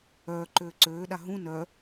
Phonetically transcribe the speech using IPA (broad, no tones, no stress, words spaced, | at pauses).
œːǃøː ǀøːɗa ɦũ nœ